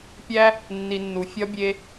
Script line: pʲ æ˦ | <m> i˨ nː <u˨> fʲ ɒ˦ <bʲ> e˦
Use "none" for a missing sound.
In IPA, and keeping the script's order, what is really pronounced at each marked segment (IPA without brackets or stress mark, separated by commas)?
nː, u˨, bʲ